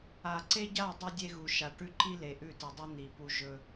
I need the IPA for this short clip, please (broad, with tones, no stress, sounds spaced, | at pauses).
a˨ ǀ e˦ ɟ a˦˨ dˤ ɨ˦ dʲ e˦ ɣ u˨ ʃ a˨ ʈ ʉ˦ ǃ i˦ l e˨ ʔ ʉ˦˨ t ɨ˨ dˤ i˦ n̪ i˨ p u˦ ʒ ɵ˦